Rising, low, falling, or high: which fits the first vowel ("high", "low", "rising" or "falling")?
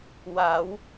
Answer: rising